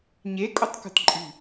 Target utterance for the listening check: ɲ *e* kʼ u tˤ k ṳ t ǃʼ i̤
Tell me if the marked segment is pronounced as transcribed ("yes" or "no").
yes